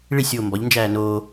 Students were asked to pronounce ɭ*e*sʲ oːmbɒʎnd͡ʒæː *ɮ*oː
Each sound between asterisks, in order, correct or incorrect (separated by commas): incorrect, incorrect